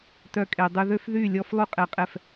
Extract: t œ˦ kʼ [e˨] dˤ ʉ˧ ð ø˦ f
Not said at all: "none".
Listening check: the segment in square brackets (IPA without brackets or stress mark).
e˧